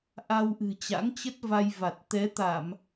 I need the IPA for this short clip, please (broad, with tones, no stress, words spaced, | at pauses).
ʔa˧wʔɨ̤˨˩ t͡ɕa̰˧˥ŋt͡ɕə˦˥t̚va˧jva˨˩t̚ t̪ɛ˨˦t̪a˧˩˨m